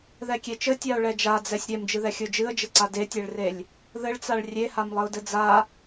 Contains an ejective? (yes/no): no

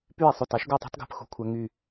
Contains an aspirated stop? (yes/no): yes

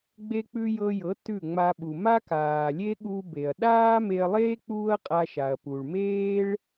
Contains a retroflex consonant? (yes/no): yes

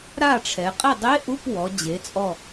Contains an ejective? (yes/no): yes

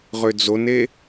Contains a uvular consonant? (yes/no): yes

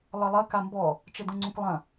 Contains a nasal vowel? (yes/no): yes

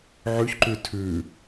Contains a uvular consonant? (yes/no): no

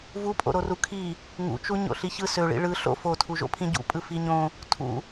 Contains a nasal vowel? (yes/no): yes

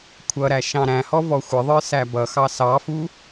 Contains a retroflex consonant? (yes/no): no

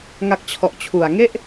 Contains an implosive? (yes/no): no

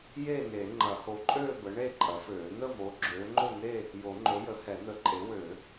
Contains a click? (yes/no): yes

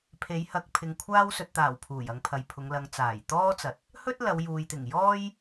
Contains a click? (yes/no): no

